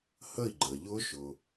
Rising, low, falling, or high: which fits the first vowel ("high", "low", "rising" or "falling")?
falling